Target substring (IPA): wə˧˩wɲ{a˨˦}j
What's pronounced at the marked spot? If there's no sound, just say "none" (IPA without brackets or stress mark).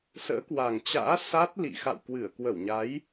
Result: a˨˦